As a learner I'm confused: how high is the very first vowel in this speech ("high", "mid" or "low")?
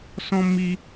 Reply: mid